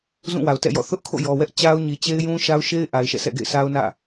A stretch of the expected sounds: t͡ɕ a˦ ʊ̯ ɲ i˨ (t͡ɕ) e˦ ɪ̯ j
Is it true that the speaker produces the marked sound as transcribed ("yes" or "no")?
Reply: yes